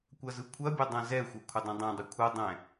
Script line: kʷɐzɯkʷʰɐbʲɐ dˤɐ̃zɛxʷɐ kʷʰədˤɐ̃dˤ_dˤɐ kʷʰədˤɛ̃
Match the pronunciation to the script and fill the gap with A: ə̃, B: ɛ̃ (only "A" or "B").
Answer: B